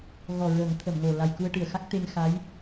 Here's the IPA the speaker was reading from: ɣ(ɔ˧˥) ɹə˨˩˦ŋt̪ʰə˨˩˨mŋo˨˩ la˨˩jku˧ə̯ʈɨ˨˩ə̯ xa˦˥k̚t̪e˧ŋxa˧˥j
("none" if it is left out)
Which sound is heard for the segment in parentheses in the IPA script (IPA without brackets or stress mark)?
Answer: ɔ˨˩